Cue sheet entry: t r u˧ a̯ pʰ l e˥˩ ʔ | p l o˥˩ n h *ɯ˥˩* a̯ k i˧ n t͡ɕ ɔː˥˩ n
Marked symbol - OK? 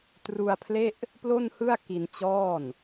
yes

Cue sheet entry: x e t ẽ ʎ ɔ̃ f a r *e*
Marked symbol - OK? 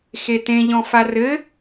no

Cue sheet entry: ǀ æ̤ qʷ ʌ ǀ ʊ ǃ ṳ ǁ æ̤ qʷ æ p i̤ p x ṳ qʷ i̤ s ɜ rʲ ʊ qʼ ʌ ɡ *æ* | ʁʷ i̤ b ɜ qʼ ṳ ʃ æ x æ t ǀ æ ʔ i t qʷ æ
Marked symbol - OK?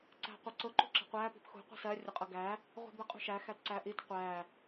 yes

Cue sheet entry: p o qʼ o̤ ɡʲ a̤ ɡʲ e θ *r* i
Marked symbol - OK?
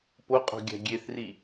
yes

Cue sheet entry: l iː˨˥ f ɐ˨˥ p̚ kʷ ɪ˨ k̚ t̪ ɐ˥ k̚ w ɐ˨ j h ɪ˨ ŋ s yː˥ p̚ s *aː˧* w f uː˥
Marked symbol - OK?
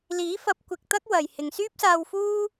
yes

